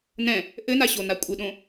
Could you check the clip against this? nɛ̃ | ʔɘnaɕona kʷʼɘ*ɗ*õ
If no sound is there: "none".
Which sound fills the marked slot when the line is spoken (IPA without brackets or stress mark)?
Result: ɗ